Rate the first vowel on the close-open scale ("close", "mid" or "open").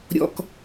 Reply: mid